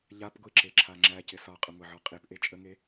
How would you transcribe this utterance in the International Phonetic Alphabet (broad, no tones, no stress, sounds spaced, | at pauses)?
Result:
ʎ a p ɡʷ i ǁ e ǁʰ a ŋ͡ǁ æ c ɪ s ɒ qʼ ə ŋʷ ɪ ʕ ɔ qʼ i p ʔ e t͡ʃʼ ə ŋ e